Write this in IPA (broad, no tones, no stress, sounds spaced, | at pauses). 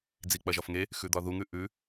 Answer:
d͡z i k͡p ɐ ʒ ɒ f ŋ e | x ʉ d̪ ɒ ð u ŋ ʉ ʔ ʉ